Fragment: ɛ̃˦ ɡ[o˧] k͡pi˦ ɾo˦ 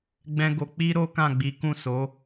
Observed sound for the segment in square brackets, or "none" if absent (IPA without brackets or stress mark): o˧